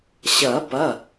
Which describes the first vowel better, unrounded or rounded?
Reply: unrounded